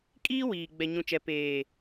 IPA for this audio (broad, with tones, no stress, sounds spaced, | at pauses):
kʼ iː˦ w iː˨ ɡ͡b ɛ˨ ɲ ũ˨ t͡ʃ ɛ˨ p eː˨